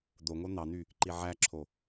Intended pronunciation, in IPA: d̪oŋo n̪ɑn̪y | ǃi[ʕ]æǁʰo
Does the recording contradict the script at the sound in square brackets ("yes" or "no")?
no